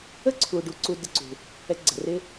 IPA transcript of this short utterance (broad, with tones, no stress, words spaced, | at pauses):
ə˦ǀʰu˨ ɖu˧ǀu˧ dɪ˧ǀṳ˨ | ɛ˧ɡ͡ǀɛ̤˨rɪ˦